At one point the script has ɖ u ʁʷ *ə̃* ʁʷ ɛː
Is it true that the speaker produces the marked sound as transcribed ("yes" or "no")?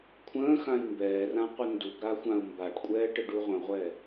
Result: yes